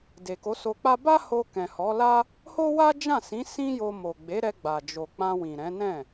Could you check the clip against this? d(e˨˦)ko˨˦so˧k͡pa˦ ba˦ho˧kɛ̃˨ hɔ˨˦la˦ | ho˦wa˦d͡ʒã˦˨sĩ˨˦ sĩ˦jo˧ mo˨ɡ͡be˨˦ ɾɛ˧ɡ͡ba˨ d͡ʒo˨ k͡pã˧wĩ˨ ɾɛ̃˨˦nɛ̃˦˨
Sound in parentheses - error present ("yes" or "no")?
yes